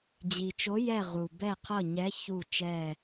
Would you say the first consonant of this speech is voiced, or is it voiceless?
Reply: voiced